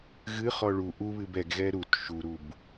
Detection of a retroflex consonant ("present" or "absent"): present